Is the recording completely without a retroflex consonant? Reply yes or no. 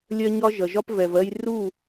yes